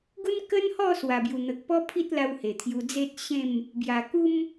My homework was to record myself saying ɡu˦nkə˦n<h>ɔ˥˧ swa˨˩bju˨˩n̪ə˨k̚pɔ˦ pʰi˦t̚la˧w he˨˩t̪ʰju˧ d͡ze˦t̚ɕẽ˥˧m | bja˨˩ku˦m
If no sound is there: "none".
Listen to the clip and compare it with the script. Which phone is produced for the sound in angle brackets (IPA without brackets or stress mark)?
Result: h